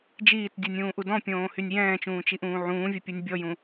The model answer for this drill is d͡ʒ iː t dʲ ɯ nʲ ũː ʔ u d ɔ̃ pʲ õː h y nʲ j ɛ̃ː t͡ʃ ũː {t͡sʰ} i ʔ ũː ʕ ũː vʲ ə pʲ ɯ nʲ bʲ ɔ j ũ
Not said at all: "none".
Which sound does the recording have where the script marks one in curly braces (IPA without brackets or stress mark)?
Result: t͡ʃ